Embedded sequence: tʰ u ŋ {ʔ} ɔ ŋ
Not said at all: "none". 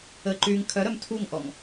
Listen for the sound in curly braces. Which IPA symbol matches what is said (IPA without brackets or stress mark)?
ʔ